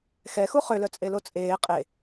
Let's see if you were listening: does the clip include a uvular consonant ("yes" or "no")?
yes